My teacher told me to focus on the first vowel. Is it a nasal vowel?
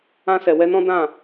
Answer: yes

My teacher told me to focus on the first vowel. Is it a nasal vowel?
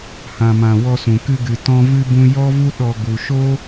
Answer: yes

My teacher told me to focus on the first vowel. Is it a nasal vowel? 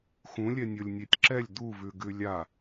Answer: yes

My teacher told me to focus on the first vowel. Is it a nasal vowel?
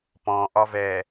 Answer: yes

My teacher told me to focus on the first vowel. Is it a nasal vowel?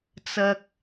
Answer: no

